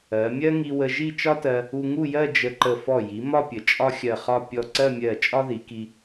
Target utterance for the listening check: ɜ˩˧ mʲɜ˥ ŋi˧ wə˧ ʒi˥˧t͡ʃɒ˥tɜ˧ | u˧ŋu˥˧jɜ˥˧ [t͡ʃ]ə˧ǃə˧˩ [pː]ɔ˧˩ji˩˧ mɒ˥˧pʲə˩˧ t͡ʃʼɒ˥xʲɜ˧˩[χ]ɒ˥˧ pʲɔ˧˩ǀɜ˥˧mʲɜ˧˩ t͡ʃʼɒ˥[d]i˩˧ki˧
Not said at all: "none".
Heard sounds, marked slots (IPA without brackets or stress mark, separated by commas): d͡ʒ, f, χ, ð